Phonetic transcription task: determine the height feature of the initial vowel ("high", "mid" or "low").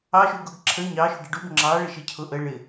low